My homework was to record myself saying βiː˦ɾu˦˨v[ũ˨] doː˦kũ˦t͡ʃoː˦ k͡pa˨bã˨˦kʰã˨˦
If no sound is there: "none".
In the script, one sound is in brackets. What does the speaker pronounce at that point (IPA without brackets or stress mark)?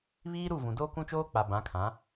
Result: ũ˨